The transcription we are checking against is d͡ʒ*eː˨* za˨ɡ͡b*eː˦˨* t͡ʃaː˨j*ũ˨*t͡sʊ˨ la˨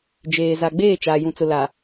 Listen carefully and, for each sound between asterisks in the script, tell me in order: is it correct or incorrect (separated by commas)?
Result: correct, correct, correct